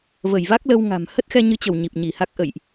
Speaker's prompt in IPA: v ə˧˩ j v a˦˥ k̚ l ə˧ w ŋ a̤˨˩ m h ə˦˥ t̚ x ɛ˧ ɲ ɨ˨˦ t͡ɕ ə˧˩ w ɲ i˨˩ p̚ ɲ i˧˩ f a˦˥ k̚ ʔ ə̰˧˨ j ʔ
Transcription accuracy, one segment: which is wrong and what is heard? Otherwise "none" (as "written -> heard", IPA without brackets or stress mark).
f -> h